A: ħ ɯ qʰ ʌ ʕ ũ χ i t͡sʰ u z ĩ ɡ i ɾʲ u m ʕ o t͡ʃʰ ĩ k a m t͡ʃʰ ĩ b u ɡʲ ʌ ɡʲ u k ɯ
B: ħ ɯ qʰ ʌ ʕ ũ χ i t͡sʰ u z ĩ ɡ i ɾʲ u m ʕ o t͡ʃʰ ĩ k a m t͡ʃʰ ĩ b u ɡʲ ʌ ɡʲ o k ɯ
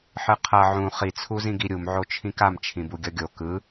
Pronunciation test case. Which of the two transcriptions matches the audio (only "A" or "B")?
B